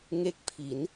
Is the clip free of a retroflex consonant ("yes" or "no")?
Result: yes